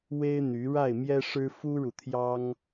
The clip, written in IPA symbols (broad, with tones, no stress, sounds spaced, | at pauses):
w e˥ ɪ̯ n̪ y˧˥ ɻ a˥˩ ɪ̯ m j ɛ˥ ʂ ɻ̩˥ f u˥ ɻ u˨ t̪ʰ j ɑ˥ ŋ